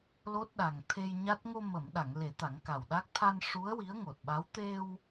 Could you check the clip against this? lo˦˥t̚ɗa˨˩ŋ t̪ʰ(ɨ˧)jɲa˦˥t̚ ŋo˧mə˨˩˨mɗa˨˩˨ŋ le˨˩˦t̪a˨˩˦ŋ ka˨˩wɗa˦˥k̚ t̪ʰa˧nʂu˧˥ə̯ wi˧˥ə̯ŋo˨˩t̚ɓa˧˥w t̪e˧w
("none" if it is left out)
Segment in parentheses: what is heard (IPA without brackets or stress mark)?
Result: e˧